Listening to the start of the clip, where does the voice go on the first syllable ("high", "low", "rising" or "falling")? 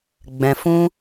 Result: low